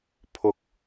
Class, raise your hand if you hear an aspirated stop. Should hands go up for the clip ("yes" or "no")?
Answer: yes